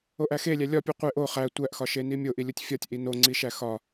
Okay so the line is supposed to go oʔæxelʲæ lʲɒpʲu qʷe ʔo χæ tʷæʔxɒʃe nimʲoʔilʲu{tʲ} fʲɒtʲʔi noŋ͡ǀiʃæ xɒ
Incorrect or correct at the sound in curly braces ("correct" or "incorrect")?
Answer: correct